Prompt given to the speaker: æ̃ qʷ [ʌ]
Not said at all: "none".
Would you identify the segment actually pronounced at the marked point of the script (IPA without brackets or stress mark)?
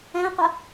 ʌ